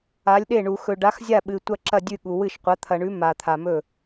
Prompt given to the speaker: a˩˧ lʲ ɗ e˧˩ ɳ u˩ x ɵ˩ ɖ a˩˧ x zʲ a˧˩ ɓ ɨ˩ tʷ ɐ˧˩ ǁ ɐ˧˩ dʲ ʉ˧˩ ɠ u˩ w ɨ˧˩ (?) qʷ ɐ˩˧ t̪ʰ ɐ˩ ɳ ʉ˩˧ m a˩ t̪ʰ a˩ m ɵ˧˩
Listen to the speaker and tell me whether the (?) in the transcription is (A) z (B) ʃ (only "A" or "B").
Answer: B